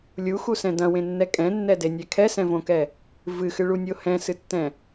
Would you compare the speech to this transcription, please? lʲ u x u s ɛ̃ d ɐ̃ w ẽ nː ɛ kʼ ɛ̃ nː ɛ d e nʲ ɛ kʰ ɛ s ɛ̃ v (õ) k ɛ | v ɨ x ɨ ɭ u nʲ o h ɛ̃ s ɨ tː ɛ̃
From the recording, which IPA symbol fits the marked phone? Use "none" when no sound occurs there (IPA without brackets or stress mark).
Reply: õ